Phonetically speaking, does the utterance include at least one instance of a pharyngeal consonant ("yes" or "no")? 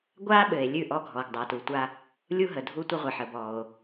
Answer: yes